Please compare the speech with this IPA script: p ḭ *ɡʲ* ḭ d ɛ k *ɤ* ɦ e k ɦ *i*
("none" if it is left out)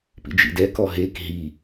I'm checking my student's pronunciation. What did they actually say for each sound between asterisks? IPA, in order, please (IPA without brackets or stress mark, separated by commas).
d͡ʒ, ɔ, i